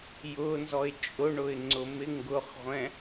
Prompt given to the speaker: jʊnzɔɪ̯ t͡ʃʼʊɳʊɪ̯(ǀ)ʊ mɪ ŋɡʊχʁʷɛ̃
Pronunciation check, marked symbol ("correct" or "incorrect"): incorrect